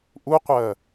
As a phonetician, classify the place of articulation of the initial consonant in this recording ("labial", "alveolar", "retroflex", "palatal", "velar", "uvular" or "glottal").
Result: glottal